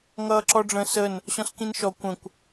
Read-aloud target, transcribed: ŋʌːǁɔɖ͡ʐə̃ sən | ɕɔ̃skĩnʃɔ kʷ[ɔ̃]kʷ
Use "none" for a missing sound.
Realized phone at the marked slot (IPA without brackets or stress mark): ə̃